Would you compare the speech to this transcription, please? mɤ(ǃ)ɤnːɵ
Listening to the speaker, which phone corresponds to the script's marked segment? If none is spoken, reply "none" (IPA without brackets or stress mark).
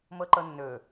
ǃ